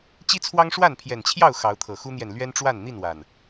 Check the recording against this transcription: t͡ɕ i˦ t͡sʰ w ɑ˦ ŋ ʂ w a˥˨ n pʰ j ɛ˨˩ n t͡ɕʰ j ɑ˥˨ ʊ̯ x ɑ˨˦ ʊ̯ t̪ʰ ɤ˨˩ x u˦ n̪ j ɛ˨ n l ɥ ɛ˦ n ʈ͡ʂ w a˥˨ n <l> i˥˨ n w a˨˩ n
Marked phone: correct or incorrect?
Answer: incorrect